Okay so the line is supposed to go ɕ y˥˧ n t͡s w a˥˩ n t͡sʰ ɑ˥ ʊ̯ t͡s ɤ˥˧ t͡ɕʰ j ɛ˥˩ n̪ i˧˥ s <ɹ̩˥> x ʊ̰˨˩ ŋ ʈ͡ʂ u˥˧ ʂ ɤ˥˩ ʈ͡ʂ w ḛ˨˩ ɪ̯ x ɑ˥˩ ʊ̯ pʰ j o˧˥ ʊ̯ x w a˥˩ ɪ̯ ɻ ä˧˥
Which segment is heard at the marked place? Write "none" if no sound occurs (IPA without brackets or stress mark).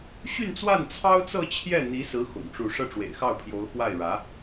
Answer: ɹ̩˧˥